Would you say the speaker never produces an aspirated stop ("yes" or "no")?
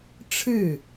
no